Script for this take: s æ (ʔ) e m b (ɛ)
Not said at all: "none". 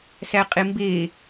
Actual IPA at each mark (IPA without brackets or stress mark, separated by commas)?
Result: qʼ, e